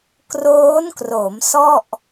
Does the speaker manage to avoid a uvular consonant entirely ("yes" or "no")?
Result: yes